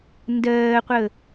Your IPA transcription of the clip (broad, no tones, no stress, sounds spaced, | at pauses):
n d ɜː qʷ ə